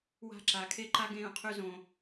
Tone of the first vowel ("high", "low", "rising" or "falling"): falling